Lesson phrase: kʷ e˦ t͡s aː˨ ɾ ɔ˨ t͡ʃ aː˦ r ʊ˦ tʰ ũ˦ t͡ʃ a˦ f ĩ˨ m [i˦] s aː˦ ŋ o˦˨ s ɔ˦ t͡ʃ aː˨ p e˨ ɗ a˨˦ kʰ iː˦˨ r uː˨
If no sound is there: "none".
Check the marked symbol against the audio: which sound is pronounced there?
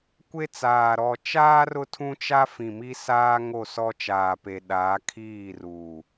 i˦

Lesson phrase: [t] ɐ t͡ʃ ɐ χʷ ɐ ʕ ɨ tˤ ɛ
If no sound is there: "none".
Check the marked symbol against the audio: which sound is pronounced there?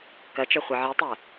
k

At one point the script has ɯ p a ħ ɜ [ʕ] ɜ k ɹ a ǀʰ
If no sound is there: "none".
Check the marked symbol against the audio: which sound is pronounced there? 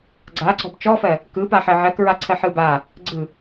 ʕ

